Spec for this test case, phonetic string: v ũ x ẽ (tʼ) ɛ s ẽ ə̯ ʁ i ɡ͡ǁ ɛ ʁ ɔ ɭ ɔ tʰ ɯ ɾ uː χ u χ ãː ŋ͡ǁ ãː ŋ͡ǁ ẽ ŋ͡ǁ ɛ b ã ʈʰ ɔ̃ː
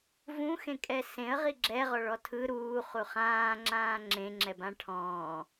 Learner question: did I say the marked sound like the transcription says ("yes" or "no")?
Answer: no